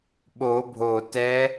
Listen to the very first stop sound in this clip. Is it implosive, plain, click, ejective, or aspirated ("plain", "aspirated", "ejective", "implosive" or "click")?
implosive